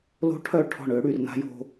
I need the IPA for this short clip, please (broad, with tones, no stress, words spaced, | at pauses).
lo̤˦ʈʰœ˦˨ʈʰɔ̤˦˨ɳʏː˦ ɽy˧rna̤˦jo̤˦